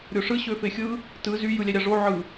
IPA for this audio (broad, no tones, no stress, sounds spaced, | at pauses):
ɾʲ o ʂ ɯ ɕ ø f e xʲ ɯ | t ɯ z y j ɯ lʲ æ ɾʲ ɑ ʐ o ʕ ɯ